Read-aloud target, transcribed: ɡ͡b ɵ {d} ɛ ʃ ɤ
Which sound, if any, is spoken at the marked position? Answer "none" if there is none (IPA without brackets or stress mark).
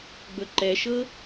ǃ